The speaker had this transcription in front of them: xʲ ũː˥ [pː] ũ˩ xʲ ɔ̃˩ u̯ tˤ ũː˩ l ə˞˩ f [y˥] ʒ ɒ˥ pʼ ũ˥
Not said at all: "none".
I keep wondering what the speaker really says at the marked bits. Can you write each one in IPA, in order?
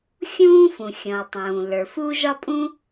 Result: f, u˥

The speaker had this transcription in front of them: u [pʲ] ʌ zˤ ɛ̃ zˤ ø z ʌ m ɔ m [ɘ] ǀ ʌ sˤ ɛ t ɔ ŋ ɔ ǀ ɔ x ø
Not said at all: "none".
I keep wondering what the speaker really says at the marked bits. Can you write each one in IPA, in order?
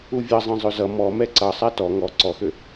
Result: vʲ, ɛ

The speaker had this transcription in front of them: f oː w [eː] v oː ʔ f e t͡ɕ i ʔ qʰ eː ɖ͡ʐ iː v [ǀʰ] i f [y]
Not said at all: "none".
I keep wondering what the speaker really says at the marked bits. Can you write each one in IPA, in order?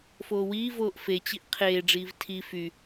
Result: iː, tʰ, y

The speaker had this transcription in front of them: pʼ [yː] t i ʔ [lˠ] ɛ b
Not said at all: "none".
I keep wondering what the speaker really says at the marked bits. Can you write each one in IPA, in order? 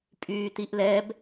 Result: yː, l

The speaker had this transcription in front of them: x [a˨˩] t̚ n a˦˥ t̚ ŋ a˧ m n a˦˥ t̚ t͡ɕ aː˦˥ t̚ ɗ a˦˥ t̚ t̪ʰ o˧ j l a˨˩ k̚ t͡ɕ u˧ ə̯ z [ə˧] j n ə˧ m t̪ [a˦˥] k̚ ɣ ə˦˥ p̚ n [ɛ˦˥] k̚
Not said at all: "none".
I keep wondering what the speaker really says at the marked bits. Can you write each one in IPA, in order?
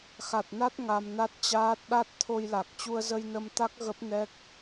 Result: a˨˩, ə˧, a˦˥, ɛ˦˥

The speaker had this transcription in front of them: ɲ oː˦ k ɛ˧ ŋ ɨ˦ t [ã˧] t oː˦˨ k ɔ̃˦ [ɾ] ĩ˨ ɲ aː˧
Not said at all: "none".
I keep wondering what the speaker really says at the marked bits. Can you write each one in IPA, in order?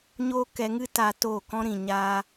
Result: a˧, ɾ

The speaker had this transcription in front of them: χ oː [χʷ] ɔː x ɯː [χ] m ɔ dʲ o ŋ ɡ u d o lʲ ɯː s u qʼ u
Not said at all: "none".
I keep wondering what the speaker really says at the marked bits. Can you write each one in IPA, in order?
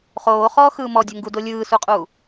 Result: χ, none

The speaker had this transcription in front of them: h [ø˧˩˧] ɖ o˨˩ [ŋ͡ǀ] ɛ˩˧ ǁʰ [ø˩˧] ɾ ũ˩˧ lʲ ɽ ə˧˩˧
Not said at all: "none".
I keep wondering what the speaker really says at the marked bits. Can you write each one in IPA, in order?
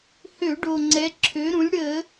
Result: ø˧˩˧, ŋ͡ǀ, ø˩˧

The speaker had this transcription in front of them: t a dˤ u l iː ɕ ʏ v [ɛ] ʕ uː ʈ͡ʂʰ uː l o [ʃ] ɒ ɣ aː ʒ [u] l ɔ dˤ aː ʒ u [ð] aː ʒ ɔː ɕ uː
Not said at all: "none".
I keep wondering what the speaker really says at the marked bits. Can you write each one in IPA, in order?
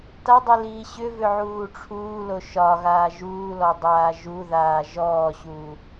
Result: ʏ, ʃ, uː, ð

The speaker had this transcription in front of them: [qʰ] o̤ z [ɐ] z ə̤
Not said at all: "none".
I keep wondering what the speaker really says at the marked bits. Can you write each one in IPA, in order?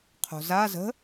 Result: qʰ, a

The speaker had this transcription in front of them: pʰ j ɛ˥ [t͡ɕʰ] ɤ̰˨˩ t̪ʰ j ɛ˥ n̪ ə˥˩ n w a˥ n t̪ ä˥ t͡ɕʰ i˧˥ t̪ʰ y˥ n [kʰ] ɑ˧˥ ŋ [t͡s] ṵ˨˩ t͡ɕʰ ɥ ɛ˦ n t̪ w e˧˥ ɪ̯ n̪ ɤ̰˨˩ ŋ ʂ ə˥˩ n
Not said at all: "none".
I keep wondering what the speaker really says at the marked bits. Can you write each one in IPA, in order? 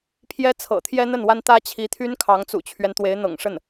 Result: t͡sʰ, kʰ, t͡s

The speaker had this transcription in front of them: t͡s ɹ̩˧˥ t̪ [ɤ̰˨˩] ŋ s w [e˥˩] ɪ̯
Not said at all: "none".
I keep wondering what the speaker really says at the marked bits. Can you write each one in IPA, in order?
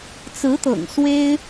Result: ɤ̰˨˩, e˥

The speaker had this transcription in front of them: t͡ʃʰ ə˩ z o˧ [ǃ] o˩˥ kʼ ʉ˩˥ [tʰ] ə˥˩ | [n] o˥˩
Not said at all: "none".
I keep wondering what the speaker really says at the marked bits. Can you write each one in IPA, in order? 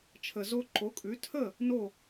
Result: ǃ, tʰ, n

